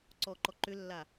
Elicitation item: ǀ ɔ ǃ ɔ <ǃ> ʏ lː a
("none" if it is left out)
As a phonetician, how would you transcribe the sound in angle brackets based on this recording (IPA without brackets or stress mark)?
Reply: ǃ